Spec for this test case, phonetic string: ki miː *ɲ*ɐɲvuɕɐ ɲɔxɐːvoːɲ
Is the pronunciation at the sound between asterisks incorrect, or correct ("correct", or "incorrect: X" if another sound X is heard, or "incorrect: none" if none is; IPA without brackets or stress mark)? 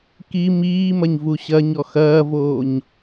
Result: incorrect: m